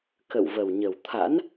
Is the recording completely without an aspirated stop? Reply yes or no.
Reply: no